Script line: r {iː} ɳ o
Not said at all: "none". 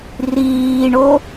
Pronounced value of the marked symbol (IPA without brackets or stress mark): iː